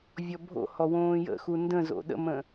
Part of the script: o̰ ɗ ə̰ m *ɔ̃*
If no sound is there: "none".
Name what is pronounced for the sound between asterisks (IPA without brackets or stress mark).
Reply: ə̃